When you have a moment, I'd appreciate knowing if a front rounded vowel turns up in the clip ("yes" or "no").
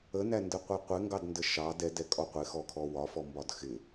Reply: no